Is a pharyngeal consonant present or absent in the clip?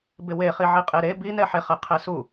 present